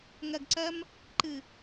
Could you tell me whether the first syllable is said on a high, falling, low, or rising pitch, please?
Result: low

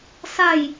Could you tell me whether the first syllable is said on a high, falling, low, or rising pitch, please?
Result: falling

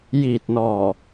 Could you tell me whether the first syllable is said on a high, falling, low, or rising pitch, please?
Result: low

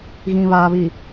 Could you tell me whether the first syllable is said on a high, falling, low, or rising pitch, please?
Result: low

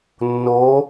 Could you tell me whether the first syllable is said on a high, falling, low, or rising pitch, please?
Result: rising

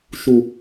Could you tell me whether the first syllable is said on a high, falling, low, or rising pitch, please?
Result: high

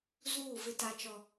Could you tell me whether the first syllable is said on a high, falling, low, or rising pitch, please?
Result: falling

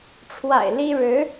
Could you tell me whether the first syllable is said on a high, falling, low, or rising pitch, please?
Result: low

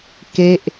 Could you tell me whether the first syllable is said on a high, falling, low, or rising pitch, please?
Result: falling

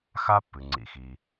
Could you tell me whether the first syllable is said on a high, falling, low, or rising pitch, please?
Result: high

